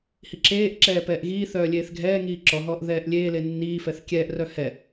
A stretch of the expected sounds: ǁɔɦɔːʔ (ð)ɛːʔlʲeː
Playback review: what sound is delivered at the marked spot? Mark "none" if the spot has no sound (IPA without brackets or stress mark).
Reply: ð